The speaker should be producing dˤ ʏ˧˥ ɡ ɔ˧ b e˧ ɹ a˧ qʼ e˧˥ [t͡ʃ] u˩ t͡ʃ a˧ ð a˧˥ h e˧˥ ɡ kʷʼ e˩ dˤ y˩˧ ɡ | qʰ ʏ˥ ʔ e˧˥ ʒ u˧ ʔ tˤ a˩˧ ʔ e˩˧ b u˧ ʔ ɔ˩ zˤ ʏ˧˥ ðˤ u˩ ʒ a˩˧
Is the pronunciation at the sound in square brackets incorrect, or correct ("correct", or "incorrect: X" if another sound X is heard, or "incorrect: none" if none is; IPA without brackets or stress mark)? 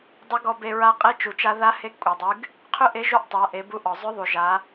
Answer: correct